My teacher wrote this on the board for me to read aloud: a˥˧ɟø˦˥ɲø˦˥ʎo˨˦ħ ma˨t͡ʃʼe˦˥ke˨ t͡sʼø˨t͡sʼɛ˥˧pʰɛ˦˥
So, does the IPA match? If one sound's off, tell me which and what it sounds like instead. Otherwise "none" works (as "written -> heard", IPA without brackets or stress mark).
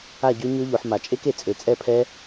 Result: none